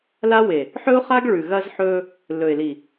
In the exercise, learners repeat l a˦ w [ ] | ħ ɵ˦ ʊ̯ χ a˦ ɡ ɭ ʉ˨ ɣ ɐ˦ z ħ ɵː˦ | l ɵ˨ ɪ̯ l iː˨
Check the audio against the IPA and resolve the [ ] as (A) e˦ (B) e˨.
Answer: B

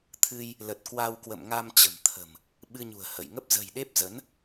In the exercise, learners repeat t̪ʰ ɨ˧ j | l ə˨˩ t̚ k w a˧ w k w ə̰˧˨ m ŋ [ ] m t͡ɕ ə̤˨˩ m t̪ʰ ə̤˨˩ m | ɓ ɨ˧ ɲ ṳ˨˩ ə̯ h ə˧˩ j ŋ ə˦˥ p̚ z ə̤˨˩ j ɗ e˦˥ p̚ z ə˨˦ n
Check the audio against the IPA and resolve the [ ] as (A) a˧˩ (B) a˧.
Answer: B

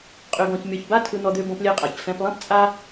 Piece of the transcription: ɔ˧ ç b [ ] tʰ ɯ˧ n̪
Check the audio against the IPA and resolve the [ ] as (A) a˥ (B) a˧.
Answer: A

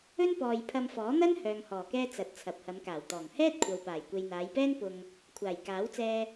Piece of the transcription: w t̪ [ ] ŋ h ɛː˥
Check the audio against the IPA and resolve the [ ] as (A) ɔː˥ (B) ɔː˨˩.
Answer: B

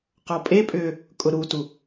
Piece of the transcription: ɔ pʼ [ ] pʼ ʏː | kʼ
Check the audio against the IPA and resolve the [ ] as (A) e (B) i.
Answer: A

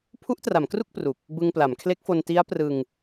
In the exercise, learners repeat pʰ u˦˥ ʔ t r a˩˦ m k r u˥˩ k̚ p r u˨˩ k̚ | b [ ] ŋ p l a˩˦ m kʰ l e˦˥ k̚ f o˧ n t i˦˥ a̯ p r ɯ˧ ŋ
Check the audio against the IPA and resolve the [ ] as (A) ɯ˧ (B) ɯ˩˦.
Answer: A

